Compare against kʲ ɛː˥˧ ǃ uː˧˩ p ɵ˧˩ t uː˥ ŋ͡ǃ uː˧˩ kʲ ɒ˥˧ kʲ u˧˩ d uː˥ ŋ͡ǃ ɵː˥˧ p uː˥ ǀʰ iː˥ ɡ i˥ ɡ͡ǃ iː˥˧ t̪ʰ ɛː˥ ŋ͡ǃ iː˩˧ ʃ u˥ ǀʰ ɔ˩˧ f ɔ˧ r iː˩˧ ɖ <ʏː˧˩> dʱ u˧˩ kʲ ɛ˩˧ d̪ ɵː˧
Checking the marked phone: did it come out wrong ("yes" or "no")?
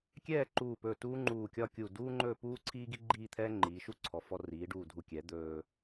yes